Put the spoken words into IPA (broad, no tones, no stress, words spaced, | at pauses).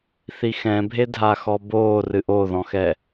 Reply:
θixɛ̃bʱe dʱaxɔboː rɨʔoðɔ̃xɛ